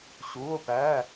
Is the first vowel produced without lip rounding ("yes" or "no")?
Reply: no